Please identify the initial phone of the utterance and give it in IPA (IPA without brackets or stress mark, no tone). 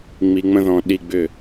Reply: ŋ͡m